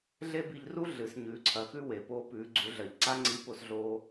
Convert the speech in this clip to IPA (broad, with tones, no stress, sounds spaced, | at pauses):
ɮ e˥ b i˧ ʎ r u˥ ɮ ɨ˩˧ s ɲ ʉː˩˧ ǀʰ ɐ˩˧ x ʉ˥ w e˩ p oː˧ p ʉː˩˧ ɡ͡ǀ u˩˧ ɮ ɐ˩ ʎ ǀ a˥ ŋ͡ǀ i˧˥ p o˧ s ɮ oː˧